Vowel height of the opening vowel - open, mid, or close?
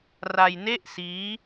open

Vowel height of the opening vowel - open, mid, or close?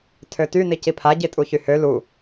mid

